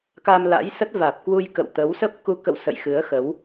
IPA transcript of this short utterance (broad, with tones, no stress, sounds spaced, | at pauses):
k a˧ m l a̰˧˥ j s ə˦˥ t̚ v aː˨˩ p̚ k w u˧ j k ə̰˧˨ w t̪ ə˨˦ w s ə˦˥ p̚ k u˧ k ə̰˧˨ w s ə̰˧˨ j x ɨ˨˦ ə̯ x ə˨˦ w